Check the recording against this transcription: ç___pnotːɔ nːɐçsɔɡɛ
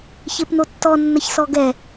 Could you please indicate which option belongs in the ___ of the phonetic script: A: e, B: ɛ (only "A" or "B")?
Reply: A